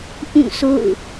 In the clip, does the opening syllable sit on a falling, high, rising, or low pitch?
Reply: falling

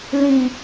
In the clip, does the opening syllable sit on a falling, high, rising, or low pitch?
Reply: low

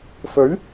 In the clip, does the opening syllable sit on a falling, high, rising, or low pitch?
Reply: rising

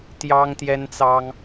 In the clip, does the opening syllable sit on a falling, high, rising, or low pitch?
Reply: high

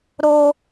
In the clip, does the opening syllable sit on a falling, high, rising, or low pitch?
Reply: high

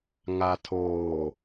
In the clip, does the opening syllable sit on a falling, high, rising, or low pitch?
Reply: low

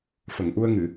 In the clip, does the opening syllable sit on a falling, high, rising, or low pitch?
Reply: low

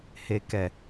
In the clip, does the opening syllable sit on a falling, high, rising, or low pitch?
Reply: low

